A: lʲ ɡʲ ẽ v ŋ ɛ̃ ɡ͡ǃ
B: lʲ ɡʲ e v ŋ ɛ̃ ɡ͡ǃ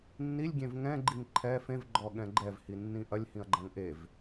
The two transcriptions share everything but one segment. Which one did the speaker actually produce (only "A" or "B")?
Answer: A